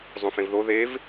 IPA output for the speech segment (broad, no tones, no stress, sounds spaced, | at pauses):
zˤ ũ f ẽ v ð o ð e v